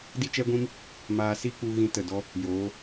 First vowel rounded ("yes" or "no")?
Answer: no